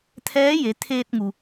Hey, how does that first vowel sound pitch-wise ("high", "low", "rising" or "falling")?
rising